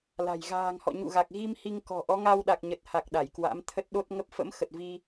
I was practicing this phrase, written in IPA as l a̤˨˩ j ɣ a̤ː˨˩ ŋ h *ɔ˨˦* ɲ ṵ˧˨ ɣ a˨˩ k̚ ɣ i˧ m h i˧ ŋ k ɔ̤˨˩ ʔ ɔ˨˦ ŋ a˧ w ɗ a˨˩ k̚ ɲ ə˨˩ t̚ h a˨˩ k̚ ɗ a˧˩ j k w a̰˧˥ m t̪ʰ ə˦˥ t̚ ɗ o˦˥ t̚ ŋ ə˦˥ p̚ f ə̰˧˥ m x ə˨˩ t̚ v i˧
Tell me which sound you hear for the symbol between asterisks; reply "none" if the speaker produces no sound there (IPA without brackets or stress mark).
ɔ̰˧˨